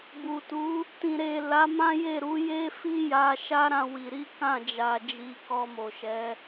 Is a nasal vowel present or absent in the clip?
present